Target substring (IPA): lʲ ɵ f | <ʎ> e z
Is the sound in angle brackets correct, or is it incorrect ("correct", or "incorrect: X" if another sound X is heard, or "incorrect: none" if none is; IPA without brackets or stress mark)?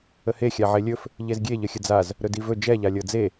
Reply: correct